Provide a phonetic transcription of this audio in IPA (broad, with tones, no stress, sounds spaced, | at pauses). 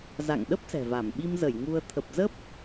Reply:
z a̰˧˨ ŋ ɗ ə˦˥ p̚ s ɛ̤˨˩ v a˧˩ m ɓ i˧ m z ə˧˩ j ŋ u˧ ə̯ t̪ʰ ə˨˩ p̚ z ə˦˥ p̚